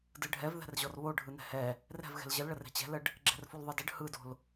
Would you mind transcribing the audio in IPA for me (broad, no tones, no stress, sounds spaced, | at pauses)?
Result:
d ɯ ɖʱ ɛ v ð ɛ̤ r ʑ ɔ r β o ɖʱ ɯ n ɛ̤ h ɛ | r ɛ̤ v ɣ ɛ̤ l ʑ ə l ɭ ə r ɛ̤ t͡ɕ ɛ̤ l ə ɖ | ɡ͡ǁ ɛ̤ r f o l ðˤ ɯ d ə ɖ h ɯ d o̤ l